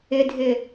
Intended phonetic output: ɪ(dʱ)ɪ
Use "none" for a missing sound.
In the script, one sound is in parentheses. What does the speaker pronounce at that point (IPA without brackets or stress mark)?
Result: dʱ